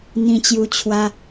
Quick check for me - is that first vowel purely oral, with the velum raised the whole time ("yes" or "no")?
no